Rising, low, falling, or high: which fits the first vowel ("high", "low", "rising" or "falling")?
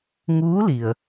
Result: rising